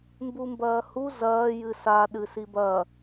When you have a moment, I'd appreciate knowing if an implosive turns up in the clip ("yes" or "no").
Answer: yes